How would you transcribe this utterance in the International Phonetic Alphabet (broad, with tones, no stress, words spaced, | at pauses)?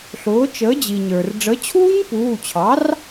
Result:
ɬʊː˩˥t͡ʃəː˩˥d͡ʑi˩ɲə˞˩r ɖ͡ʐə˩˥t͡ɕʰuː˦˥ɲpuː˩˧˩t͡ɕʰɑ˩˥r